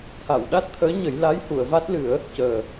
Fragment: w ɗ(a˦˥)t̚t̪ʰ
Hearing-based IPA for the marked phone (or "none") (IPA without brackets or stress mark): a˦˥